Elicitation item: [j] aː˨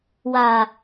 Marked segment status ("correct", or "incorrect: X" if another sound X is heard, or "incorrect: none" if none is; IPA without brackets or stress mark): incorrect: w